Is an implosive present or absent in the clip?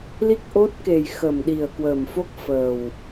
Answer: present